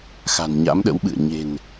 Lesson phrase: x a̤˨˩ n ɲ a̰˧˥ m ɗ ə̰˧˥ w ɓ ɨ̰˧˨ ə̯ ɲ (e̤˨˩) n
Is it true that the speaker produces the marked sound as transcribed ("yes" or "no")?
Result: yes